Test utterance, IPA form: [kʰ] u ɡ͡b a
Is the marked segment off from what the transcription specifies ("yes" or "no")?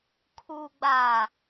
no